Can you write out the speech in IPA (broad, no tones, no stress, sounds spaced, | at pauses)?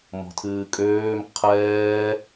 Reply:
m ɔ̤ tʰ ɨː kʼ øː m qʰ ɛː